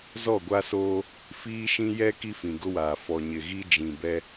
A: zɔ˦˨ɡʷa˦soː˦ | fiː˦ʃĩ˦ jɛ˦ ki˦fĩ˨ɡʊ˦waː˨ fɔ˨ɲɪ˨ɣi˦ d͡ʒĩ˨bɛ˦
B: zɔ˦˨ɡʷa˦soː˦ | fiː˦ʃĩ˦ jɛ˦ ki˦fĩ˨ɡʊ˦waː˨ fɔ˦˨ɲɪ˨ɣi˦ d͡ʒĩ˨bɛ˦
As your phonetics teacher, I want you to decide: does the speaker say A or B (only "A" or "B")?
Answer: A